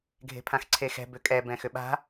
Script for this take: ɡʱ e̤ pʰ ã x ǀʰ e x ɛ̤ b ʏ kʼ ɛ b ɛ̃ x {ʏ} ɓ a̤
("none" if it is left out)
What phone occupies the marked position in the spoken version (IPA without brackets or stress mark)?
ʏ